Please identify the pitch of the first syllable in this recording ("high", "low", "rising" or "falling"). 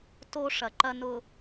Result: high